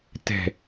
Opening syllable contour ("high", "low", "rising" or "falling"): low